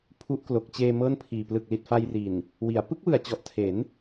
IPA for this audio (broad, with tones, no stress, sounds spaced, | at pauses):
pʰ u˦˥ ʔ k l o˨˩ k̚ t͡ɕ eː˧ m ɤː˥˩ n pʰ iː˨˩ p l ɯ˨˩ k̚ l i˨˩ t̚ f a˧ j r i˨˩ n | w i˩˦ a̯ p ɯ˦˥ k̚ w ɯ˨˩ a̯ t͡ɕ ɔ˨˩ ʔ tʰ e˩˦ n